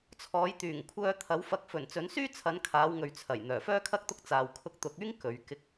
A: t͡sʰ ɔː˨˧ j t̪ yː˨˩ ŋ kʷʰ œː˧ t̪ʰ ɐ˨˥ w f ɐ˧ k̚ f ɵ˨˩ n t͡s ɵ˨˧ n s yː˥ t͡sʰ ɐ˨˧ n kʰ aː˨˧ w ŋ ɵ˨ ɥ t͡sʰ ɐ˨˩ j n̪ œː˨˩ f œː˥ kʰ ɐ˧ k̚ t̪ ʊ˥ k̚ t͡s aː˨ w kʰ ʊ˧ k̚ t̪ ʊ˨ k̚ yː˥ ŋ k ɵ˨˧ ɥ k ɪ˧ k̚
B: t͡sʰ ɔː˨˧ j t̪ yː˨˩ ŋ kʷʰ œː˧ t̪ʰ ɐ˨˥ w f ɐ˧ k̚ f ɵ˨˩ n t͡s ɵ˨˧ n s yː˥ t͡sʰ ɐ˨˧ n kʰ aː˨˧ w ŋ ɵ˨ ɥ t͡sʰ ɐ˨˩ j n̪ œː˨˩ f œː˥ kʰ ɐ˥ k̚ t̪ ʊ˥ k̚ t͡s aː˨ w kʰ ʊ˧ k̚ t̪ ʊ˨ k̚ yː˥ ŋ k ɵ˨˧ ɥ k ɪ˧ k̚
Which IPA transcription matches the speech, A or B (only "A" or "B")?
B